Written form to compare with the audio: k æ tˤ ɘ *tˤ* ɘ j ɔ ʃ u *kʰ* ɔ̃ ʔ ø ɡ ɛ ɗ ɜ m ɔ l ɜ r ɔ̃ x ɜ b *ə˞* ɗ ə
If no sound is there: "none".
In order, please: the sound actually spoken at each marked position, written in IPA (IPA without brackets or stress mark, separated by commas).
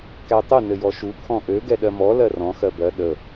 n, kʰ, ɜ